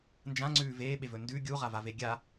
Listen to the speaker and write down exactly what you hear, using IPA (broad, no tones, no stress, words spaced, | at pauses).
nd͡ʒãŋ͡ǀʉː veːɓevɵ ndʉ ɡʲuʁavave ɡʲa